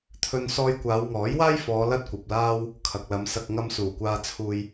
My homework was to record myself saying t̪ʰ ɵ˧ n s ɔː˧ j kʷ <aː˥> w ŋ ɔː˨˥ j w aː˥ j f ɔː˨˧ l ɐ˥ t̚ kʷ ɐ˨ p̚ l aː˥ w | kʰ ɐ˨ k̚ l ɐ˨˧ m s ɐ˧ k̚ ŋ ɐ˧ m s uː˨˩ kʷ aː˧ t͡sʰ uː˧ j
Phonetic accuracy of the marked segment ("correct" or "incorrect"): incorrect